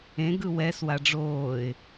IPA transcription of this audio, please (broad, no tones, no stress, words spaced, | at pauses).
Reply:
ẽ ɡɯwɛs waɖ͡ʐoːɪ̯